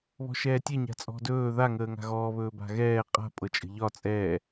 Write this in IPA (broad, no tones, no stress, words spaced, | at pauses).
βɔ̤ʃɛːtʲɛ ɲa̤t͡sʼɔ̤dɵː ða ŋəːŋa̤ɣɔː βɵːba̤ɣɛː qʼa̤ pʼɤt͡ʃʼə̤ʎɒ t͡sʼɛ